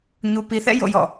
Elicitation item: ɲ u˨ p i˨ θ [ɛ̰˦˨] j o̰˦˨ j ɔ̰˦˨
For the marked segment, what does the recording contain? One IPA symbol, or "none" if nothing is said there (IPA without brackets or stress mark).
ɛ̰˦˨